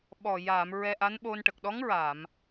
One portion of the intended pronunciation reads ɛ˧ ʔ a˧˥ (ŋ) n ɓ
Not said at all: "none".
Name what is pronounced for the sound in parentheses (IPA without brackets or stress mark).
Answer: none